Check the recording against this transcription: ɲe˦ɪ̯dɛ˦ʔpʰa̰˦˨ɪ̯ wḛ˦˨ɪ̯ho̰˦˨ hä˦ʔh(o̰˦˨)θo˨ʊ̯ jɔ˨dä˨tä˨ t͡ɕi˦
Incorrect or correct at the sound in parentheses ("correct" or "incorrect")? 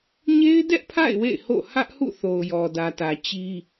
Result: incorrect